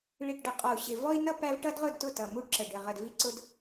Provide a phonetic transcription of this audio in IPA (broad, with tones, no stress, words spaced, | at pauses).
ɭi˨ʈɖə˨ qʼɔ˨u̯ɕɪ˨ vɔ˦i̯nʌ˦ pæ˦v ʈʌ˦dʁʊ˦˨dtʊ˦˨ tʌ˨mu˦ɖǁə˨ ɖɪ˨ ʁə˨dvi˦ǀʊ˦d